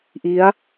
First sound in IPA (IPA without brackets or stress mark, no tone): ʔ